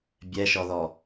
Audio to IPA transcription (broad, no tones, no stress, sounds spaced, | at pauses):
bʲ ɛ ʃ ɔ ð ɔ